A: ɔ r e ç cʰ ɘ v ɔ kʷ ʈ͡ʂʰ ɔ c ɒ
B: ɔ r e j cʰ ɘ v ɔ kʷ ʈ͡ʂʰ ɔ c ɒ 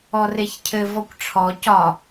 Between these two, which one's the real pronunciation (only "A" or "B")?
A